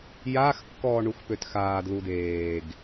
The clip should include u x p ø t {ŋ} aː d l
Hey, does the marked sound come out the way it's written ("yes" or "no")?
no